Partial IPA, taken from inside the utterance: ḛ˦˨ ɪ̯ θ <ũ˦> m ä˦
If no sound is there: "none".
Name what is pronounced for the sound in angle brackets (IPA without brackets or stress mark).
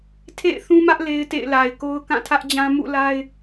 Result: ũ˦